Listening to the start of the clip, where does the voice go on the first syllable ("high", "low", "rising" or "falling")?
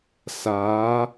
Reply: rising